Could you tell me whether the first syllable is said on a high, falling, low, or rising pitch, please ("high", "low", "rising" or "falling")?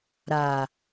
low